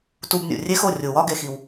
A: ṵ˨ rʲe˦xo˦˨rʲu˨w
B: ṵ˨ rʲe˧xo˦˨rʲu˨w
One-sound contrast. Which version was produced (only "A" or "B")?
A